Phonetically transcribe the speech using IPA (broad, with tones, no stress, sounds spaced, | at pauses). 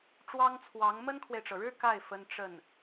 ʈ͡ʂ w ɑ˥ ŋ t͡sʰ w ɑ˧˥ ŋ m ə˥ n kʰ w e˨ ɪ̯ ʈ͡ʂ ɤ˩ ɻ ɻ̩˥ k a˥˩ ɪ̯ f ə˥ n ʈ͡ʂ ə˥˩ n